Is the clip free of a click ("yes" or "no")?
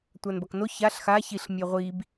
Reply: yes